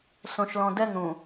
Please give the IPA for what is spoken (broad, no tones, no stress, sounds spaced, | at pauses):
s õ ʃ l ɔ̃ d ɛ ŋ ɾ ũ